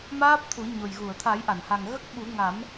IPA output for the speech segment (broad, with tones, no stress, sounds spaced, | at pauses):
m aː˦˥ p̚ t̪ʰ u˨˩˦ ɲ o˨˩ j ɣ u˨˩˨ ə̯ t̪ʰ a˨˩˦ j ʔ a˨˩˨ n h a˨˩ ŋ ɣ ə˦˥ k̚ ɓ u˨˩˦ ŋ a˨˩˦ m